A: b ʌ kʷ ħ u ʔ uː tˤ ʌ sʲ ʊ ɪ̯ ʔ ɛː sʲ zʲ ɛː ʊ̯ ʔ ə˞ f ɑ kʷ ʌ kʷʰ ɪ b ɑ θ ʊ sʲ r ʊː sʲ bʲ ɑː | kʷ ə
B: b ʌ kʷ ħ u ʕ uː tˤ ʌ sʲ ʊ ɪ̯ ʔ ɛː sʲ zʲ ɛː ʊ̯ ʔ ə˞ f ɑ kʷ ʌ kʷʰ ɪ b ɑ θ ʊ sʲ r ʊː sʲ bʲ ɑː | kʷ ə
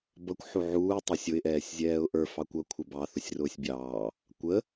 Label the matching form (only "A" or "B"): B